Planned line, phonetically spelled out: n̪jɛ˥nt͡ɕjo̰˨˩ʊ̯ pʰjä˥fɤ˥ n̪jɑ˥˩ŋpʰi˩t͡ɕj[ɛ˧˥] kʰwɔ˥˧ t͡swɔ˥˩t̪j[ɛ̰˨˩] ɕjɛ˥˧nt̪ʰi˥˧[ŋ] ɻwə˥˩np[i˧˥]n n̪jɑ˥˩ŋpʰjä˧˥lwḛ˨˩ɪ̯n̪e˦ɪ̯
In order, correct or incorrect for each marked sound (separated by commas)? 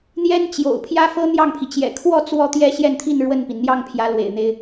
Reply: incorrect, incorrect, incorrect, incorrect